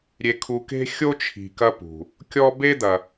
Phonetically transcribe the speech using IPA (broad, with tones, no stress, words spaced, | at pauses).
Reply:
ɾʲe˨kʰu˨ke̤˦ xʲo˥t͡ʃʰi̤˨kɐ˦pṳ˩ | kʲɔ˥ be˥d̪ɐ˨